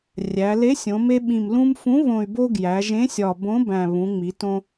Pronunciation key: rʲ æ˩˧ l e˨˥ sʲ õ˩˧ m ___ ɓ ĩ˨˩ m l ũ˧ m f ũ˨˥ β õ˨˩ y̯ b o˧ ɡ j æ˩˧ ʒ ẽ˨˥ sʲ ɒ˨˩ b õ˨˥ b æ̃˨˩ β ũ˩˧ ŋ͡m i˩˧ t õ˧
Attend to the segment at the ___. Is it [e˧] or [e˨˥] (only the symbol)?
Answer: e˧